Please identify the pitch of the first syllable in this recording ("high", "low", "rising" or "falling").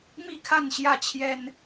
falling